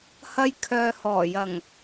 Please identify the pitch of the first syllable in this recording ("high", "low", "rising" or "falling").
high